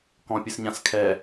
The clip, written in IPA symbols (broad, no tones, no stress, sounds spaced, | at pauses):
k ɔ̃ pʲ ɨ s ɲ ã s kʰ ɛ